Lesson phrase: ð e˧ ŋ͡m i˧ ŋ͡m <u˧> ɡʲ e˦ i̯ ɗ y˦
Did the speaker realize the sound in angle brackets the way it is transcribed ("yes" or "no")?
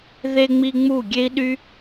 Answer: no